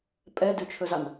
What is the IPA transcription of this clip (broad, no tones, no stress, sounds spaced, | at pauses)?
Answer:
pʼ ɛ d ʉ t͡ʃʰ ɵ z ɑ n